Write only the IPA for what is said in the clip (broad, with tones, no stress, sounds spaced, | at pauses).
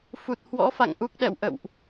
f u˨˩ t̚ h w ɔ̰˧˥ f a̰˧˨ ŋ ʔ u˦˥ k̚ ɗ ɛ̰˧˨ w ʔ ə̰˧˨ w ʔ